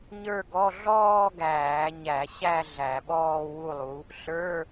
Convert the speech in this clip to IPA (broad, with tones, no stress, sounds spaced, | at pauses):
ɲ ə˞˥˧ ɡ ɔ˧˥˧ ɮ ɔː˥˧ ɡ æː˧˩˧ ɲ æ˧˩˧ ɕ æ˥˧ ɮ æ˧˩˧ ɓ ɔː˥˧ w u˥˧ lˠ u˨˥ | ɬ ə˞˧˥˧